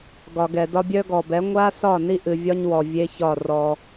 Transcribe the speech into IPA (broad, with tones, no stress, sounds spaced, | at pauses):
ɡ ɒ˨ ɡ ɛ˨ d ɒ˦ bʲ œ˦ ɡ ɔ˨ b ɛ˨˦ ŋʷ a˦ s ɒ˦˨ n i˦ ʔ ɨ˨ vʲ ɒ˦ ɲ w ɔ˨ vʲ e˦ ç ɒ˦˨ r ɔ˦